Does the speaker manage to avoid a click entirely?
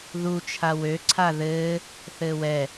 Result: no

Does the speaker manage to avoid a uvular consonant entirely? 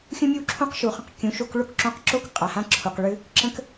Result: no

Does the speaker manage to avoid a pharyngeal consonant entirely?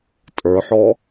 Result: no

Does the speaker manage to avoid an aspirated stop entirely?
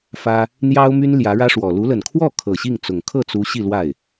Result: no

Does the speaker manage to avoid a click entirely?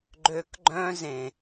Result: no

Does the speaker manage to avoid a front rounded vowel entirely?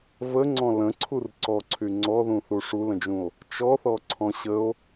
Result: no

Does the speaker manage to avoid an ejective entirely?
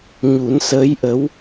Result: yes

